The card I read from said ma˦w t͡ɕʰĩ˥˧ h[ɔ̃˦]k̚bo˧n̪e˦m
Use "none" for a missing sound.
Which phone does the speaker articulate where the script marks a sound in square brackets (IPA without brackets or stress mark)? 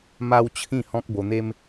ɔ̃˦